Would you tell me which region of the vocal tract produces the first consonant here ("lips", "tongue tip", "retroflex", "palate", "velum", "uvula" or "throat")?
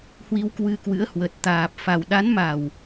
throat